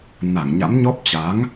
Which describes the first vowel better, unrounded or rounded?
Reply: unrounded